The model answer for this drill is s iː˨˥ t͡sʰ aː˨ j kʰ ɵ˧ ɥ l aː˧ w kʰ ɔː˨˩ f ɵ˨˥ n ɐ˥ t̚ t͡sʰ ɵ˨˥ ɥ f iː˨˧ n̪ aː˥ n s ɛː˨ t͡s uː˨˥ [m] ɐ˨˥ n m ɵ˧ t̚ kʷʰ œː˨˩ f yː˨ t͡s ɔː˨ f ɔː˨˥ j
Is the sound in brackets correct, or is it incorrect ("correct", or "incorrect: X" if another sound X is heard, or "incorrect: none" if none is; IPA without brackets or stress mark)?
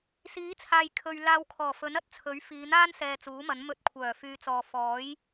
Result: correct